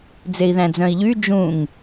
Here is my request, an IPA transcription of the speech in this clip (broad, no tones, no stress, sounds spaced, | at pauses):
d͡z e i̯ ð æ̃ d͡z œ̃ i̯ ʎ y d͡ʒ ũ ŋ